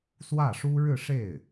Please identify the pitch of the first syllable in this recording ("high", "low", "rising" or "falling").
falling